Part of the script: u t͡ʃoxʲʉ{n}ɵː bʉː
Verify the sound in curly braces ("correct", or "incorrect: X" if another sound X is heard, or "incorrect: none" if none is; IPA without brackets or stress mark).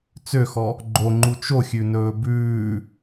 correct